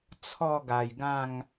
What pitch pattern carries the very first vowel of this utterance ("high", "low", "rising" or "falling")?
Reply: falling